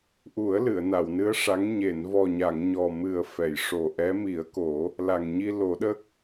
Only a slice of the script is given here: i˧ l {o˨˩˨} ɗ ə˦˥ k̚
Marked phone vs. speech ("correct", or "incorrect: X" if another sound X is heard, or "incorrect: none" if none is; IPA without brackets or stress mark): incorrect: o˨˩˦